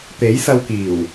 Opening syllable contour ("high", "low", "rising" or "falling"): rising